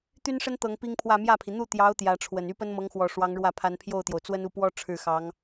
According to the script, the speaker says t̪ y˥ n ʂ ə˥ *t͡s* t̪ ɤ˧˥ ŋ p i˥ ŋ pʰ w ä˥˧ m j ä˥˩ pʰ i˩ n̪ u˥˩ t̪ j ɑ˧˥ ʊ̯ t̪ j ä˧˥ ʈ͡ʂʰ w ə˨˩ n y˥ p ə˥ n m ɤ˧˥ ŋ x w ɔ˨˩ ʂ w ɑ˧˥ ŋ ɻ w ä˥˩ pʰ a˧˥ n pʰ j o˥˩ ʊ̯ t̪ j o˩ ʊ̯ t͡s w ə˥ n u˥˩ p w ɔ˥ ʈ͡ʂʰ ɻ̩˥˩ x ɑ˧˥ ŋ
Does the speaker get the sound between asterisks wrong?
yes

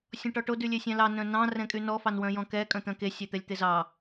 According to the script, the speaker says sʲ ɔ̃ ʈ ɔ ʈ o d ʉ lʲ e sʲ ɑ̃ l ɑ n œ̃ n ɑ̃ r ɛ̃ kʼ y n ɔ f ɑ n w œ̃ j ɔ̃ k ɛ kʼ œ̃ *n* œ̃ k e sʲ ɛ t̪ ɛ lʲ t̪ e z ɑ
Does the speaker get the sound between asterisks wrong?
yes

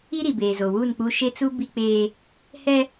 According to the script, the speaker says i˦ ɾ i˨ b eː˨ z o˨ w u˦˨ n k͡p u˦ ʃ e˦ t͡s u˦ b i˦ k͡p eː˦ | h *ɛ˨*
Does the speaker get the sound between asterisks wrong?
yes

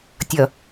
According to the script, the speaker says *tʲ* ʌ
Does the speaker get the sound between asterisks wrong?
no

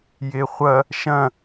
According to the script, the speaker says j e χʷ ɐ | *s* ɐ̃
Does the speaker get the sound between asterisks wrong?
yes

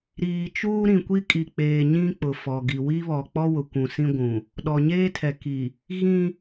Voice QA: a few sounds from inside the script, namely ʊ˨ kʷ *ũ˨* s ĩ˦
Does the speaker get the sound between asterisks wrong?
no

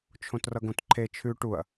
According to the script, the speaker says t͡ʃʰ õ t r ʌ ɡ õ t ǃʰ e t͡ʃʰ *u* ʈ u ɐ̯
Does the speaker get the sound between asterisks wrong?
yes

